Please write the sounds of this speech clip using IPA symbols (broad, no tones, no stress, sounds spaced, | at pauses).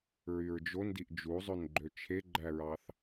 ɹ y ɹ d͡ʒ o n d i ʔ d͡ʒ u zˤ ø n ɡ͡ǃ ø t͡ʃʰ e ɡ͡ǃ æ ɹ ɑ θ